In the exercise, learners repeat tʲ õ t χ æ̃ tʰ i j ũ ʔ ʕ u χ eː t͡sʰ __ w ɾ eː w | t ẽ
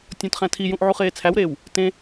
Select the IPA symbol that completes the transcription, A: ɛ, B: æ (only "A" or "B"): B